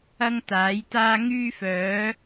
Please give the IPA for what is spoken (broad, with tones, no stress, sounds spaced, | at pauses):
ɐ˥ ŋ t̪ aː˨˥ j t̪ aː˥ ŋ yː˥ f œː˨˥